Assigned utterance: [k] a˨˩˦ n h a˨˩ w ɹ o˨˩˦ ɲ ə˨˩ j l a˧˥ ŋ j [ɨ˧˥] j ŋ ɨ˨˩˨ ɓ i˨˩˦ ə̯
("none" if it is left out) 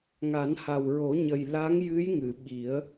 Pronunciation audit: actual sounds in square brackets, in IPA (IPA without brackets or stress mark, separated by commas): ŋ, ɨ˧˥